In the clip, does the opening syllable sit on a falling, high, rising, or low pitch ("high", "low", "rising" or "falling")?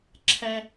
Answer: high